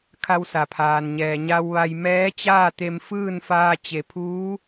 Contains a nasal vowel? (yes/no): no